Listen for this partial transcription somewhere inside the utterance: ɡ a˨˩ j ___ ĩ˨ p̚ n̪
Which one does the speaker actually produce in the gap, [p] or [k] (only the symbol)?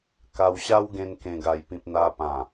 p